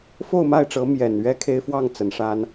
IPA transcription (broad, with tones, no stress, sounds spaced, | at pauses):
f o˥˧ ʊ̯ m a˥˩ ɪ̯ ʈ͡ʂ ɤ˧˥ m j ɛ˨˩ n ɥ ɛ˥ kʰ e˥ ɪ̯ f w ɑ˥˩ ŋ t͡s ə˧˥ n ʂ a˥ n